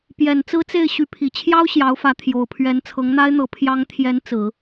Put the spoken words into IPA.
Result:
pjɛ˨˩n t͡sɹ̩˥t͡se˥˩ɪ̯ ɕy˧˥pʰi˨˩ t͡ɕʰjɑ˥ʊ̯ ɕjɑ˧˥ʊ̯fä˧˥ t̪ʰjo˨˩ʊ̯pʰɥɛ˧˥n t͡sʰɤ˧˥ŋn̪a˥ɪ̯n̪ɤ˧˥ pʰjɑ˧˥ŋt̪ʰjɛ˧˥n t͡sɹ̩˨˩˦

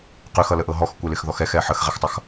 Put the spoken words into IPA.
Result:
qyxʌləʔɤ ɦɔxkʷɛlɪxðɔx ɛxɛ ħəxʁɛxtˤʌx

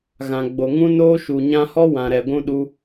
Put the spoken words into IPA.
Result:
ɣã˨ɡ͡bo˨ ŋũ˦noː˦ ʃu˨ɲã˦ hɔ˦wã˨ɾɛ˨ɡʷũ˧ ɗu˧

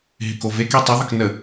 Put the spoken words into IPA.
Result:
ɦɪkoveke tˤɪðˤək nə

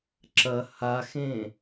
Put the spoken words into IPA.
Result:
ǁɐ haxẽ

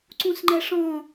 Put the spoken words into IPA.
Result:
ǀũsŋ͡ǃɛʂɔ̃

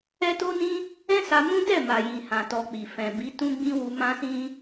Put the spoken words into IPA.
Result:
ɛ˦to˦nĩ˦ | ɛ̃˦sa˧mũ˦ dɛ˦˨ma˨jĩ˨ hã˨ tɔ˧k͡pi˨ fɛ̃˨bi˨˦ tũ˦ɡ͡bĩ˦wu˧ mã˦sĩ˦

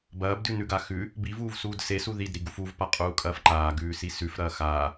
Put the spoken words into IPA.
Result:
bɐːbdʉnʉɡa xʉ | bivuːvsuːd sesu ðidɾiɡuf uvpaqʼuːkʼɐːf ǃaːɡʉːsi sʉfɾɐː xaː

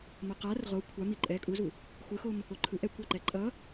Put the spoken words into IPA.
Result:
moqar ʁo kʷʰa miǃʼɛ kʼuzu | xʷɯxom | oǃʰɯʔ ɛkʷa ǃɛǃʼʌ

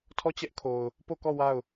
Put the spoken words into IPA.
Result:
tʰɔ˦˨t͡ɕɛ˦ʔkʰo˨ʊ̯ | po˦˨kɔ˦˨ wa˦˨ʊ̯

